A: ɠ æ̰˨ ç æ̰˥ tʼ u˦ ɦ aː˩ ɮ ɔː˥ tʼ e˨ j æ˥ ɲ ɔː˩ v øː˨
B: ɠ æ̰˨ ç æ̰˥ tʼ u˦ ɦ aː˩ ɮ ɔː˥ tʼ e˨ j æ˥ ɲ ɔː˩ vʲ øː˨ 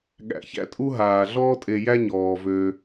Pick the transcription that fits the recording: A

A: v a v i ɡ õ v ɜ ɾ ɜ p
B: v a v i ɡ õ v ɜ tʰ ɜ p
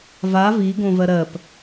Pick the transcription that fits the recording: A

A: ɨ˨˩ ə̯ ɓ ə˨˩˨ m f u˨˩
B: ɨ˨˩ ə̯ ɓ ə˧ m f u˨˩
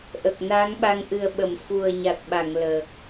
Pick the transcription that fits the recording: A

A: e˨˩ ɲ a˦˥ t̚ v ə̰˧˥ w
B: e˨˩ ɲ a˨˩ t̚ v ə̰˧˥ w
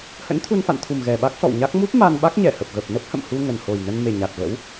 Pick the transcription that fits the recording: B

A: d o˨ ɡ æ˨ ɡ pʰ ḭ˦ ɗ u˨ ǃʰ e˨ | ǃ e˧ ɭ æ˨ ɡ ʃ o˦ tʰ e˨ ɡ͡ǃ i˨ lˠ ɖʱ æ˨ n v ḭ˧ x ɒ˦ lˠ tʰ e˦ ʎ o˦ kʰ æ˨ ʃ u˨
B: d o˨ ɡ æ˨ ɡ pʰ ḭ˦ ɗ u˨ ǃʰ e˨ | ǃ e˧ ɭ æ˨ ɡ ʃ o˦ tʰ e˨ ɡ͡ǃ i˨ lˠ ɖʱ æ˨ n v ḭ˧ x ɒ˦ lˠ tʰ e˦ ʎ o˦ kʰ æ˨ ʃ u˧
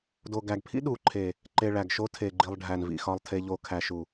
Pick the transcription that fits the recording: A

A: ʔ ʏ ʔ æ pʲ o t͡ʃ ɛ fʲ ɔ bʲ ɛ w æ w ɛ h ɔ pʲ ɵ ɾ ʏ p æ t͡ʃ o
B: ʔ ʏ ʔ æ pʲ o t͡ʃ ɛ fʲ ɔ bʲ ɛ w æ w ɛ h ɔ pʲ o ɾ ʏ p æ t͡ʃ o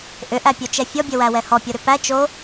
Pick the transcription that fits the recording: B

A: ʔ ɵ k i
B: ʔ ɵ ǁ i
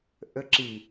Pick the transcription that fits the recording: B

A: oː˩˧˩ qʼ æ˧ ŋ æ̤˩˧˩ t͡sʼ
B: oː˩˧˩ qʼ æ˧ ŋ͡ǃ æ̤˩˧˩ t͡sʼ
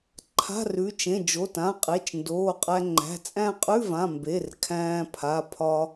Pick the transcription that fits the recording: B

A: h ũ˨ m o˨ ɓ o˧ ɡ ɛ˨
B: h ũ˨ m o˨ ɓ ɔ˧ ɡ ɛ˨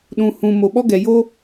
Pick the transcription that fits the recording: B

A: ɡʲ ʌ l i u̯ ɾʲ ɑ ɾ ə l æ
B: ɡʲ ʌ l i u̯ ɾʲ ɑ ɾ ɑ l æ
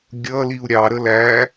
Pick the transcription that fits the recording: A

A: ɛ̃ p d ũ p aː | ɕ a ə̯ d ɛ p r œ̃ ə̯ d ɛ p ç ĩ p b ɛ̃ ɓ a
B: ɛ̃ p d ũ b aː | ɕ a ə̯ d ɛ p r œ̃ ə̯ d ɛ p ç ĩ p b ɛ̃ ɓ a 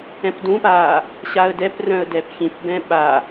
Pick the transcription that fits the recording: A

